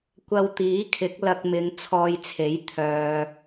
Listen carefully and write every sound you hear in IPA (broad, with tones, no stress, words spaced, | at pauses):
kʷɐ˧wt̪iː˨˥kʰɪ˨˥k̚ lɐ˧k̚mɪ˨˧ŋ t͡sʰɔː˧jt͡sʰe˨˥j t̪ʰœː˨